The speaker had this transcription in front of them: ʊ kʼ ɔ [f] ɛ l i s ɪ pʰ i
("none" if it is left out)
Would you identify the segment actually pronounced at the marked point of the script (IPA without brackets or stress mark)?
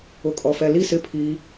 f